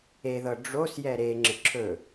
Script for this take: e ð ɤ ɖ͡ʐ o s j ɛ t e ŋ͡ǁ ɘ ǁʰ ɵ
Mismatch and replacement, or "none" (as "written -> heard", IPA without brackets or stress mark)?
t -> ɾ